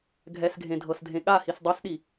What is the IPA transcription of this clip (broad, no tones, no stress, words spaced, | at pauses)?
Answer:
ɡʱɛsɡʱẽ dʱɤsdʱẽɠahis dˤasɗi